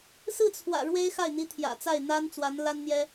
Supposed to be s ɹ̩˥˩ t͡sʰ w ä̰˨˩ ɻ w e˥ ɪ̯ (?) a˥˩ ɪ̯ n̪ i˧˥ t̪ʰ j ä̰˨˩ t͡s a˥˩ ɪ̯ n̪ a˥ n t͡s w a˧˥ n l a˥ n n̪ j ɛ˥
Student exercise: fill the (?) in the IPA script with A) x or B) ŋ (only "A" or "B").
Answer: A